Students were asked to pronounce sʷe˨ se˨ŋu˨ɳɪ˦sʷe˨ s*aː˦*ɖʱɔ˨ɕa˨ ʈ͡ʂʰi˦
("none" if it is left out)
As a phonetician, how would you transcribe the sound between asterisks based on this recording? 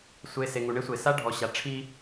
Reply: a˦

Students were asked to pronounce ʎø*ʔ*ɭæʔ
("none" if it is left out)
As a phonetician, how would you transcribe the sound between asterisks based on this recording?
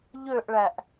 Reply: ʔ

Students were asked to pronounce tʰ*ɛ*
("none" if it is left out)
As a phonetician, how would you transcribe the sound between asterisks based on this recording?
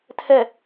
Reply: ɛ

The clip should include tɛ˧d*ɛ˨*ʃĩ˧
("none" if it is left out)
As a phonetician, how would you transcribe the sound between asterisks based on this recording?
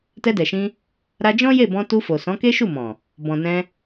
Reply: ɛ˨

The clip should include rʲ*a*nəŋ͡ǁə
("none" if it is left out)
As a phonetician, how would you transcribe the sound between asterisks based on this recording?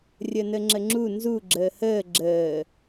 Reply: ə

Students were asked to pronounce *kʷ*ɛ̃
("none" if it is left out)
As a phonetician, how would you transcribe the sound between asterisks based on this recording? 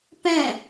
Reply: p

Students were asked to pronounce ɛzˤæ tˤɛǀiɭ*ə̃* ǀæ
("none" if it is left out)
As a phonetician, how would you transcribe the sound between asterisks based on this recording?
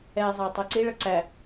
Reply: ə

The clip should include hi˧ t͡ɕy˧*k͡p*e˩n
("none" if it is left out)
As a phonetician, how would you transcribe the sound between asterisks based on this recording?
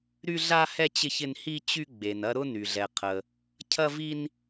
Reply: ɡ͡b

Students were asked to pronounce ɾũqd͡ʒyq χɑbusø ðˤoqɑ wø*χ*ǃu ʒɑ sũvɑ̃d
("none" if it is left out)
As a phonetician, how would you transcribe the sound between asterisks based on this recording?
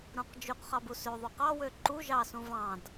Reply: none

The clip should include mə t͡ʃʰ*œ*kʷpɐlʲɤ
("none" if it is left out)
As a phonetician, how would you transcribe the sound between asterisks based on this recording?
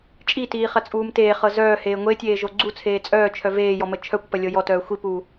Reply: œ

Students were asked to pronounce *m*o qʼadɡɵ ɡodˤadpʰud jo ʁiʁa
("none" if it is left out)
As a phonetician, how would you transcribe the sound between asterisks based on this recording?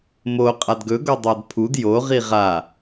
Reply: m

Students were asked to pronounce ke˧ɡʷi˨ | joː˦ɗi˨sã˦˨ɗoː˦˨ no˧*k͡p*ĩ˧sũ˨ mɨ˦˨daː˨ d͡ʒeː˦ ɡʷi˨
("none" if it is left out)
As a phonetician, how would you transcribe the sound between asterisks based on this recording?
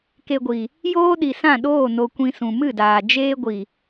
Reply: kʷ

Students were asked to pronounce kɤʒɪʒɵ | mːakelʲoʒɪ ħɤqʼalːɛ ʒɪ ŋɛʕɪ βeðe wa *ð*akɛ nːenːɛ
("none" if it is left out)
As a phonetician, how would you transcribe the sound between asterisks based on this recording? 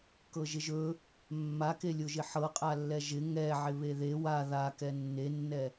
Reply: ð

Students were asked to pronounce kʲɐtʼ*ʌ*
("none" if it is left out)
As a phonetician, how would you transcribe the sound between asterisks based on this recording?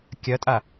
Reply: a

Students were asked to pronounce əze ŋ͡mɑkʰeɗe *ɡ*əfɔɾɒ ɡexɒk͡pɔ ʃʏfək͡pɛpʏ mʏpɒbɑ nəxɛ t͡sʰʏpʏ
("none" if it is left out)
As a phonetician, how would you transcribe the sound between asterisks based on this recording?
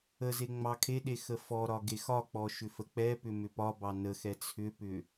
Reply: x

